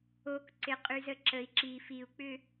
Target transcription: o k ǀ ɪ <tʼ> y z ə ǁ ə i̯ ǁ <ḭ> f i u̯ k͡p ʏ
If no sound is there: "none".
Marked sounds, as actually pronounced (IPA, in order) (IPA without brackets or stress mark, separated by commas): qʼ, i